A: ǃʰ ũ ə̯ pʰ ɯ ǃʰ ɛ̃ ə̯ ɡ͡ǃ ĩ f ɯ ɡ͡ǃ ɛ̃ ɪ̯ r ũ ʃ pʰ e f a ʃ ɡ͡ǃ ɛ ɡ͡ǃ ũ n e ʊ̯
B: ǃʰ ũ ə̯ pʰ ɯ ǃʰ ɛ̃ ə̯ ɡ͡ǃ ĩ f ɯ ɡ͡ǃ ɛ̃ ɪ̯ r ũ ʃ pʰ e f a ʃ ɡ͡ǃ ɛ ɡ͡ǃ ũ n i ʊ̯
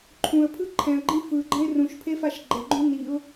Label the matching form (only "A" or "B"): B